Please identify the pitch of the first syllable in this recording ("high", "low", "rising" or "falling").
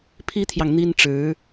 high